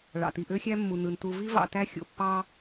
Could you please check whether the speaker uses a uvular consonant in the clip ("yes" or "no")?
no